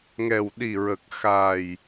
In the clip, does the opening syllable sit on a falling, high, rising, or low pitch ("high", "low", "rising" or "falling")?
low